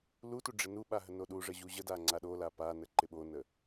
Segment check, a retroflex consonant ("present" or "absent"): present